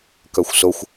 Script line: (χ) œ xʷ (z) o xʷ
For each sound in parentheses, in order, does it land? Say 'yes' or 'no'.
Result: no, no

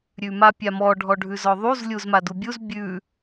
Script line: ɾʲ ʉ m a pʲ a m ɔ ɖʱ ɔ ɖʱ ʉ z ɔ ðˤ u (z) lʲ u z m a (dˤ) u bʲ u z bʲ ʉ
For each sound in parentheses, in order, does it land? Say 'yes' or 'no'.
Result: yes, no

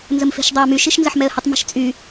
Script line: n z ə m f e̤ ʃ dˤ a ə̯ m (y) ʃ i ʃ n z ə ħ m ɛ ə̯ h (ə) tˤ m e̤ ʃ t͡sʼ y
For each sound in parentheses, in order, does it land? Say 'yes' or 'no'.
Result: yes, yes

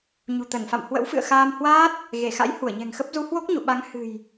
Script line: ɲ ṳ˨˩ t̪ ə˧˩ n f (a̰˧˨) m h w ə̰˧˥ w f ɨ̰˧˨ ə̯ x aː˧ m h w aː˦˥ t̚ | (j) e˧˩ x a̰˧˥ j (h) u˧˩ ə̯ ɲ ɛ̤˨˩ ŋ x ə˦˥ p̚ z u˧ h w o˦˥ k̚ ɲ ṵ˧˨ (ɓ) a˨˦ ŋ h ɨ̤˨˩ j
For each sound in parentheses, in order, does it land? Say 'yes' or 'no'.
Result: yes, no, yes, yes

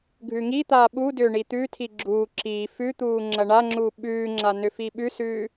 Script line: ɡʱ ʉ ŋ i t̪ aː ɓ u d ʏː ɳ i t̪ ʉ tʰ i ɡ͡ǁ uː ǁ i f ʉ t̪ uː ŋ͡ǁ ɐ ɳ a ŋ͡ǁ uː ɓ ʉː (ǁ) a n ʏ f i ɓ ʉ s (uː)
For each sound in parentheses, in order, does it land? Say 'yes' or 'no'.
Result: no, no

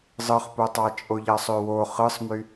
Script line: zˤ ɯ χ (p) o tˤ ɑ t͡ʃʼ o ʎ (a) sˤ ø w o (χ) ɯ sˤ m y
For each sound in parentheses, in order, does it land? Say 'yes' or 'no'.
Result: yes, no, yes

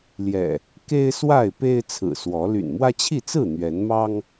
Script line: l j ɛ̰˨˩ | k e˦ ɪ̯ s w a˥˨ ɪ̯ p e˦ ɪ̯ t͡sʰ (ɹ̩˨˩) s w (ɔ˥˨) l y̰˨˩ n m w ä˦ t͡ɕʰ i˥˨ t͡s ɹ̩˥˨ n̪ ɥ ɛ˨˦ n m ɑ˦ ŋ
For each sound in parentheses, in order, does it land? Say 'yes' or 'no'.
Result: yes, no

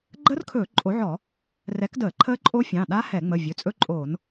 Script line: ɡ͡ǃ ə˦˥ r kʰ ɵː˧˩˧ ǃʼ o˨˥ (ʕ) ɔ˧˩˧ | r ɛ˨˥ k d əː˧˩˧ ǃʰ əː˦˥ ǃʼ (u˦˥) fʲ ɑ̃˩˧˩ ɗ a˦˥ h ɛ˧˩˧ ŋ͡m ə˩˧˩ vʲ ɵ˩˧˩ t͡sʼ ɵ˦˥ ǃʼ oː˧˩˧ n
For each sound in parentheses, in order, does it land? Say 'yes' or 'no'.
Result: yes, no

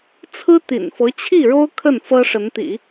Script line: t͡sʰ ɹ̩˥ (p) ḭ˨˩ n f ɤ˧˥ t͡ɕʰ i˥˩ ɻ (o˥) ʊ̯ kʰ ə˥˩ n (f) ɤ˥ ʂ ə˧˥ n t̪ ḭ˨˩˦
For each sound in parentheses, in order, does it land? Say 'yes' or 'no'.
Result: no, yes, yes

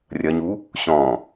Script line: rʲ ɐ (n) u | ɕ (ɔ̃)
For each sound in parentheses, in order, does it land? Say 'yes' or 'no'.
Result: no, yes

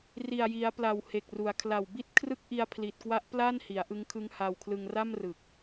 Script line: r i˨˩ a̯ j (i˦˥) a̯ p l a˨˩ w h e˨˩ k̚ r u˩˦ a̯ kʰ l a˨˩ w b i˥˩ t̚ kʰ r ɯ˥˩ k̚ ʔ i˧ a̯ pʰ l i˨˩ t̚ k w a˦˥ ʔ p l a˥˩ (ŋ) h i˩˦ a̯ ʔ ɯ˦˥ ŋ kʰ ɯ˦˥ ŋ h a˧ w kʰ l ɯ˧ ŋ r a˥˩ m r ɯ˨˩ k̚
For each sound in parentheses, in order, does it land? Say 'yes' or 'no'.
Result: no, no

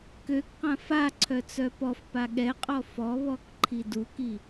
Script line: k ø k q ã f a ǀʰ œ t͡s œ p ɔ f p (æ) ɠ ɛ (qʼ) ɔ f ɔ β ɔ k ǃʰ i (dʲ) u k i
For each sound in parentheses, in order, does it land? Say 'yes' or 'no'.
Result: no, yes, no

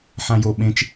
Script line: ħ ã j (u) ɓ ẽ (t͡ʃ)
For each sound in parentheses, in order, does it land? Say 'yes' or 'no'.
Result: no, yes

